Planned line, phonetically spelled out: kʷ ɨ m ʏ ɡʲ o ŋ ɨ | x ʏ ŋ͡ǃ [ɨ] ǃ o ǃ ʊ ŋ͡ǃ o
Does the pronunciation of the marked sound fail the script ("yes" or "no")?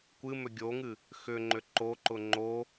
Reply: yes